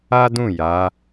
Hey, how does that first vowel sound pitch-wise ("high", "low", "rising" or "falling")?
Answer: high